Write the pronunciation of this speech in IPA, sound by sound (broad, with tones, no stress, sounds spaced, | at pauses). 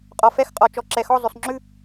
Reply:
qʼ ɔ˨ f ɛ˥˨ x qʼ ɔ˨ t͡ʃ ɔ˨ ǁ ɛ˨ x ɔ˥˨ zˤ ʉ˨ sˤ ŋ͡ǁ ʉ˥˨